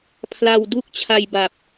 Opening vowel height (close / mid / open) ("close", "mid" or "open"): open